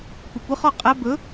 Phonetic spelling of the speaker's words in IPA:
kʷ ɐ kʷ ɯ χ ɔ qʼ æ b ɵ

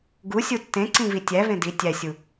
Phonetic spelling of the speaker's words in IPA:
ɡ u sʲ u tː ẽ ǀ ĩ v i tʲ æ v ẽ d i tʲ æ sʲ u

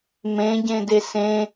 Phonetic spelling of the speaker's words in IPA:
m ẽ ɟ ẽ d e s ẽ

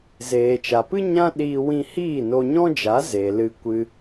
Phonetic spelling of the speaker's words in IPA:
z eː˨ t͡ʃ a˨ p ɨ˦ ɲ ã˦ ɗ iː˧ w ĩ˧ h iː˦˨ n o˧ ɲ ɔ̃˦ d͡ʒ a˨˦ z e˨ l ɨ˧ kʷ ɨ˧

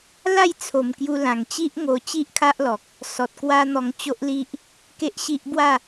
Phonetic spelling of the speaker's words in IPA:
l a˥˧ j t͡sʰ o˨˩ m k j u˧ l ã˨˩ ŋ t͡ɕ i˦ ʔ ŋ o˧ t͡ɕ i˦ ʔ kʰ a˦ ʔ l ɔ˨ k̚ | s ɔ˨ t̚ k w a˦ n̪ ɔ˧ ŋ t͡ɕ o˦ ʔ l i˦ ʔ | k e˦ ʔ ɕ i˦ ʔ b w a˥˧

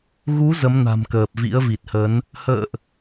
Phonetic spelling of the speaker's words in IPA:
ɣ u˨˦ z ə˨˦ m n a̤˨˩ m k əː˨˩ p̚ v ḭ˧˥ ə̯ v i˨˩ t̚ h ə˨˦ n | h ə̰ː˧˨ ʔ

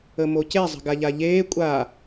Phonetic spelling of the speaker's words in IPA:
ə m o c e zˤ ə̤ ɡ a ʎ a ʎ eː kʷʼ a

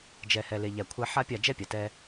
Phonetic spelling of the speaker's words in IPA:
d͡ʒ ɛ˨ h ɛ˨ l e˨ ʎ æ˨ kʷʰ æ˧ ħ a˦ pʲ a˦˨ d͡ʒ ɛ˦ pʲ a˨ t ɛ˧

